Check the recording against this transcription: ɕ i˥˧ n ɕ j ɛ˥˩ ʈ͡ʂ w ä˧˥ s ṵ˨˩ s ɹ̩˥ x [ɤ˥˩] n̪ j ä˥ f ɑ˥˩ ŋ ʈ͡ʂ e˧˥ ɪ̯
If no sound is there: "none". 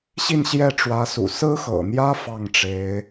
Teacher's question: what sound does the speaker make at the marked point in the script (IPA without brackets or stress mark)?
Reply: ɤ̰˨˩